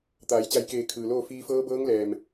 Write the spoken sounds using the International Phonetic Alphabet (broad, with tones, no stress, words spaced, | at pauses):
t̪aː˩˧jt͡ɕa˧jkeː˧˩ kʰɯː˩loː˥˨ fiː˧fɤː˧˥bɤː˧˥ŋlɛː˩m